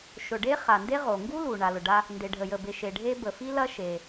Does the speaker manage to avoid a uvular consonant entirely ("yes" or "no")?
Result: no